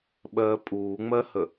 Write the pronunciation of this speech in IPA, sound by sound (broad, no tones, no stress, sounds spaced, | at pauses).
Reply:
ɓ ɜː pʼ uː ŋ͡m ɜ h ə